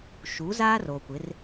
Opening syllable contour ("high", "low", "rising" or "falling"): rising